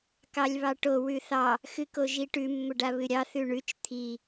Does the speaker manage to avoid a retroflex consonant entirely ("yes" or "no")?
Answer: no